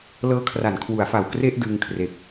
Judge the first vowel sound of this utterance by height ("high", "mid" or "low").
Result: mid